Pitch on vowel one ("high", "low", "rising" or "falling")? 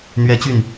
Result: high